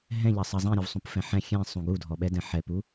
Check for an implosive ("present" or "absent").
present